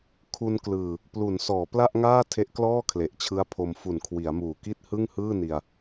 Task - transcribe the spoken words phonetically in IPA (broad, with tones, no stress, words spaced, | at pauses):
kʰu˧nklɯː˨˩ | plu˩˦nsɔː˩˦ pla˥˩ʔŋaː˥˩ tʰe˦˥ʔklɔː˥˩kʰle˨˩ʔt͡ɕʰɯ˦˥a̯ pʰo˧m fu˨˩nkʰwi˩˦a̯muː˨˩ki˥˩t̚ hɯ˥˩ŋhɯː˥˩ ni˧a̯